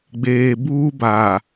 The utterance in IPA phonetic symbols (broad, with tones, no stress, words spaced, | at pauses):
ɡ͡beː˨buː˦ ba˨